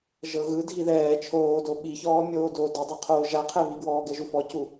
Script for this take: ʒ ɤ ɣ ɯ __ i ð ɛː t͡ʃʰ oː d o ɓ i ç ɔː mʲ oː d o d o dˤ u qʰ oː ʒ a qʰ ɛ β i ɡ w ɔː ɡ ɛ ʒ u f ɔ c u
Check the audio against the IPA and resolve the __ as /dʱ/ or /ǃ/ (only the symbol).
dʱ